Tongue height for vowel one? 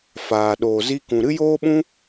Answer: low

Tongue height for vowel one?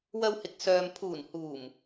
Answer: low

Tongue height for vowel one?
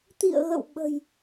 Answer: high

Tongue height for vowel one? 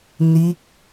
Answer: high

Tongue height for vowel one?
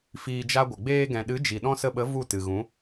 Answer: high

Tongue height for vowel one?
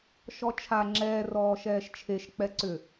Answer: mid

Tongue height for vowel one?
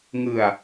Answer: high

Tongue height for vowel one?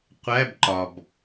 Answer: low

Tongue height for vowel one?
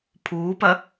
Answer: high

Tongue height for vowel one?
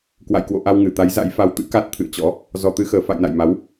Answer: low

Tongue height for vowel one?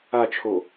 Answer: low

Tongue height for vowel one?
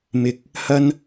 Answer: high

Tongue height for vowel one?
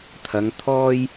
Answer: low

